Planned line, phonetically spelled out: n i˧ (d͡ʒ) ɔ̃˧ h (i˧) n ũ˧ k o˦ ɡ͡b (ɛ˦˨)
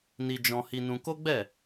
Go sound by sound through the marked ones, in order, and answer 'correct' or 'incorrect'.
correct, correct, correct

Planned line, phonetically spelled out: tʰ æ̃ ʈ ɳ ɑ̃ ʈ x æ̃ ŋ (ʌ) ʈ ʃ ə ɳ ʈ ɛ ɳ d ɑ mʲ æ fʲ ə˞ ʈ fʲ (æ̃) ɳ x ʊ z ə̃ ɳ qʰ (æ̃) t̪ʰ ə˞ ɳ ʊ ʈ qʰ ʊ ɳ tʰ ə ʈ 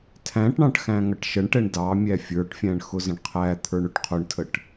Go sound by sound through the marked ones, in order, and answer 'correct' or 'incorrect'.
correct, correct, incorrect: æ

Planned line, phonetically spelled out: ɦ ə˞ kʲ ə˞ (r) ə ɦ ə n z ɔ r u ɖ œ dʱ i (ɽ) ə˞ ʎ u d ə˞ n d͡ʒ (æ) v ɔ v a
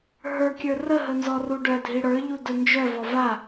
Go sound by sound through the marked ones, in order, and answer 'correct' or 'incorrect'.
correct, correct, incorrect: œ

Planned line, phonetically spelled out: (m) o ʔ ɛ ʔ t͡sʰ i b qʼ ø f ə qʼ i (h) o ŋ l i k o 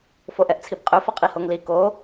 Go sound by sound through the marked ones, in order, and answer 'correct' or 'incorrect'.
incorrect: f, correct

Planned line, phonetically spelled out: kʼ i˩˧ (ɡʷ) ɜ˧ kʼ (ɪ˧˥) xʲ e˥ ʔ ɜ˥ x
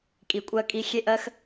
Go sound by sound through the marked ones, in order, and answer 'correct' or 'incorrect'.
incorrect: kʷʼ, incorrect: i˧˥

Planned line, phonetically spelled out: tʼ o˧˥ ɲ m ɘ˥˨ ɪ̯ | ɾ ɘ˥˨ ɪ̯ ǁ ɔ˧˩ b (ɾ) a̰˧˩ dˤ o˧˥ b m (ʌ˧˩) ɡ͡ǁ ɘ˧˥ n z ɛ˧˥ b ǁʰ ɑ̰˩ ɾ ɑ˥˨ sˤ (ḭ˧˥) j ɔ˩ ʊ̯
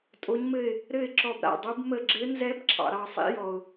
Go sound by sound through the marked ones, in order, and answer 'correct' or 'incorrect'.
correct, incorrect: ə˧˩, correct

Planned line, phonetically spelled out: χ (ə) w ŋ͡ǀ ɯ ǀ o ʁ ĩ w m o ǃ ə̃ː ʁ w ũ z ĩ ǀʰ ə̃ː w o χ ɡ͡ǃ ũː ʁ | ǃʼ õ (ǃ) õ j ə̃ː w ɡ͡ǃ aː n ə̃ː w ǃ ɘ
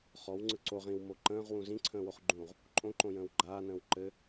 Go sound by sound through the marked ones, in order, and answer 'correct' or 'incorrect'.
incorrect: ɔ, correct

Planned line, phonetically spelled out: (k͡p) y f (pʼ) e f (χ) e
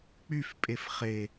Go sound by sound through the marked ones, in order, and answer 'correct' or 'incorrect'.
correct, correct, correct

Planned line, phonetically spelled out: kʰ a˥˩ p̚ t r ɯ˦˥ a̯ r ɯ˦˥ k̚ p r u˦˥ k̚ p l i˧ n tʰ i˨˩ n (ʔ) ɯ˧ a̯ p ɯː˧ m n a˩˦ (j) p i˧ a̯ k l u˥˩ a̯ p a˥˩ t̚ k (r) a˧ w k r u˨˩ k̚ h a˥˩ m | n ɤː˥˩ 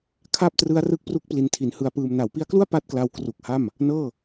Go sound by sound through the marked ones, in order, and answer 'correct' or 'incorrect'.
incorrect: h, incorrect: w, incorrect: l

